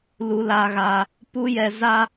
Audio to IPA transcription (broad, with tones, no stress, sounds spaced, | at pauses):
l u˧ l a˧ ɣ aː˧ | p u˦ j ɛ˧ z a˦